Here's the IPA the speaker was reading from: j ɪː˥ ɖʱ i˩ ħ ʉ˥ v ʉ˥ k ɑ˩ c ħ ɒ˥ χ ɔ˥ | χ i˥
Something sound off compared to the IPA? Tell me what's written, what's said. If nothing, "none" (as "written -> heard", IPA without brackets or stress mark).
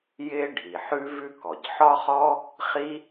ɑ˩ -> ɔ˩